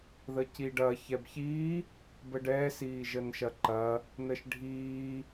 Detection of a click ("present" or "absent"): present